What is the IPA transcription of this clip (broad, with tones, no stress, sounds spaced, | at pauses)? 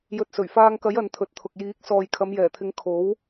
j ɵ˨ t̚ s ɵ˨˩ ɥ f aː˧ ŋ k ɐ˨˥ j ɐ˨˧ n t̪ʰ ɵ˨ t̚ t̪ʰ ʊ˨ k̚ j iː˨˥ k̚ s ɔː˨ j kʰ ɐ˨˧ m j ɛː˨˩ t̪ʰ ɪ˨˧ ŋ kʰ o˨˥ w